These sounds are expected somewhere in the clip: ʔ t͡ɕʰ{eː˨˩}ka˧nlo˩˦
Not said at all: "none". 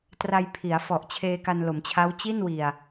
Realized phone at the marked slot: eː˧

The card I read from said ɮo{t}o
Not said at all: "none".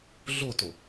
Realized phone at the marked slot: t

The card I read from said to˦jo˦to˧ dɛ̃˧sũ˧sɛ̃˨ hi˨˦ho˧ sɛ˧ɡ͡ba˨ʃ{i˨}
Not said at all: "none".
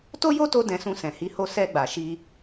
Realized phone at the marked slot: i˧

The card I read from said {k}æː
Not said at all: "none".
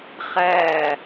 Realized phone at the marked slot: χ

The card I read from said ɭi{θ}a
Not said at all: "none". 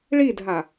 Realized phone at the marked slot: dʱ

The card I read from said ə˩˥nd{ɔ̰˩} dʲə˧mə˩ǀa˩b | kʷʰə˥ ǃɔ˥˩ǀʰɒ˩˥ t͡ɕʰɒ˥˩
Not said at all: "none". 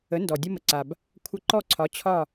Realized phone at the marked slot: ɔ˩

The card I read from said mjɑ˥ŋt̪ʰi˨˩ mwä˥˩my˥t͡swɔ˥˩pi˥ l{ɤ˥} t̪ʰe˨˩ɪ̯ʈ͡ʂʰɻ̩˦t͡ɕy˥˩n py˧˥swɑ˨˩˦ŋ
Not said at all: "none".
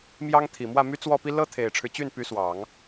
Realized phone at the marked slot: ɤ˥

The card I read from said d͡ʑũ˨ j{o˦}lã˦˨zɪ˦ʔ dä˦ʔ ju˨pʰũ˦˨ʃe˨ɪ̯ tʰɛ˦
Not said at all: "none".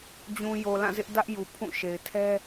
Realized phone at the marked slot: o˨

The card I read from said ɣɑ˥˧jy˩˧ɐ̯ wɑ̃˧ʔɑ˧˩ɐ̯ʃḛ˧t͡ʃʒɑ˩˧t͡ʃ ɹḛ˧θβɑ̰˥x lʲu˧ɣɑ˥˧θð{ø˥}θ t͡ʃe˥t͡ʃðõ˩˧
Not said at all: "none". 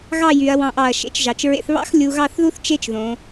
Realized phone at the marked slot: u˥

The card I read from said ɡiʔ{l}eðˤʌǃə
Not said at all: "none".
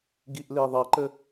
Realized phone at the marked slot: l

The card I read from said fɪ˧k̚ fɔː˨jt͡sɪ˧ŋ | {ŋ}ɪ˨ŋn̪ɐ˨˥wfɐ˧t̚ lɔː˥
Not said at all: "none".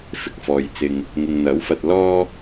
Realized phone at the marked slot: ŋ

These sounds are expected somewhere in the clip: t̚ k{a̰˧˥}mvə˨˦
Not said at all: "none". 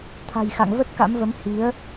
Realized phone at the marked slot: a̰˧˥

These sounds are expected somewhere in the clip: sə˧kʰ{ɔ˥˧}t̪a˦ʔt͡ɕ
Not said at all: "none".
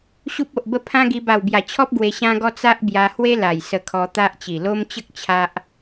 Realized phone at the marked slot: ɔ˧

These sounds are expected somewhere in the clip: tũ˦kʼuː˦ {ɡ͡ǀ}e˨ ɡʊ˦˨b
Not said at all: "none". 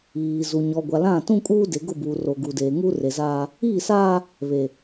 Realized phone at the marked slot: d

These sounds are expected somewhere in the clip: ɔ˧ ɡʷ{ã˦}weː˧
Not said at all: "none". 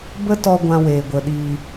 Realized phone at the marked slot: ã˦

